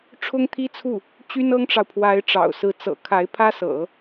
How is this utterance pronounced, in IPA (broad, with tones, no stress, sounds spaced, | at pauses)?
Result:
ʈ͡ʂʰ ʊ˥ ŋ t̪ʰ i˥ t͡sʰ u˥˩ | t͡ɕ y˥ n ɤ˥ ŋ ʈ͡ʂ ɑ˨ ʊ̯ pʰ w a˧˥ ɪ̯ ʈ͡ʂ ɑ̰˨˩ ʊ̯ s ɹ̩˧˥ t͡s ɤ̰˨˩ kʰ a˧˥ ɪ̯ pʰ ä˥ s ɤ̰˨˩˦